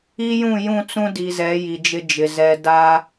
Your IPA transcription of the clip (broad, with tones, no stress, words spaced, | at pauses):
i˦jũ˦˨jũ˦˨t͡sũ˦ di˨zɛ˨˦ ji˨d͡ʒɪ˦d͡ʒɪ˨ zɛ˨da˦